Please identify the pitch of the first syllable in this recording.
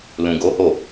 low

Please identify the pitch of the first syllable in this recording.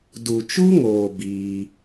low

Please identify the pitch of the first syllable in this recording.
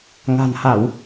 low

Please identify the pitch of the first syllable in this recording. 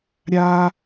high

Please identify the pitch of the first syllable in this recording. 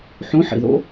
rising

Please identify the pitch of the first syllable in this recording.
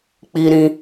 high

